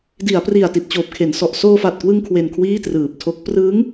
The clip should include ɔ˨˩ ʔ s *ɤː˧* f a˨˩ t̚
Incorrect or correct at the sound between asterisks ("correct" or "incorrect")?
incorrect